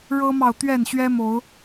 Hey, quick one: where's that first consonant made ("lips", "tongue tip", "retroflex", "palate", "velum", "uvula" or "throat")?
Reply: retroflex